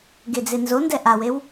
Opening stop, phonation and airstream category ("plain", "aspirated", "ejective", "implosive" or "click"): plain